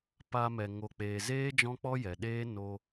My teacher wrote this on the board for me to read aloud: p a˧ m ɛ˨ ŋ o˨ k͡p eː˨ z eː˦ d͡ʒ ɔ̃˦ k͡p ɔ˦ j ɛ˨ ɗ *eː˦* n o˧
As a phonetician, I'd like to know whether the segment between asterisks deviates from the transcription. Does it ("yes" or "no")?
no